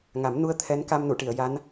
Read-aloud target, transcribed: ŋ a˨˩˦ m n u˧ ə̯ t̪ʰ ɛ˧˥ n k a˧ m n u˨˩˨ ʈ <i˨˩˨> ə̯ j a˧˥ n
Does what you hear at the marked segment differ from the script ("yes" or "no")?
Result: no